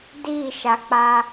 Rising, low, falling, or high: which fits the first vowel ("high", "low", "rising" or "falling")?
falling